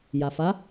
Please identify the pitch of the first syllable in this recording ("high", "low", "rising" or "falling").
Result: low